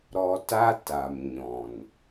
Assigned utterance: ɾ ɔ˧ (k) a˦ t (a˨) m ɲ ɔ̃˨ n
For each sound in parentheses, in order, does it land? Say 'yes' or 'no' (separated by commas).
no, yes